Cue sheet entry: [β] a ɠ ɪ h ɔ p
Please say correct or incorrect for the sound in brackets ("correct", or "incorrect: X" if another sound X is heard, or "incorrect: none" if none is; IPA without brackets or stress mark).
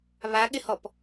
correct